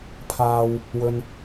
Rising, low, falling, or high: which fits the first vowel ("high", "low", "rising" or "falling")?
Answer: low